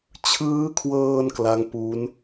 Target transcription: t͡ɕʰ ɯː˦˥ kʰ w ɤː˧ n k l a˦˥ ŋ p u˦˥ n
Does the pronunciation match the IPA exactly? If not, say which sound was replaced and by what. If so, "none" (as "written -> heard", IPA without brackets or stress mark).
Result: none